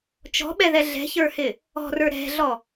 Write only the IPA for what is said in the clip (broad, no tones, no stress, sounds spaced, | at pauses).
t͡ʃ ɔ̤ ɓ ɛ ð ɛ ɮ ɛ̤ ç ə˞ h ɪ | ɔ̤ r ə˞ ɾ ɛ̤ ɮ ɔ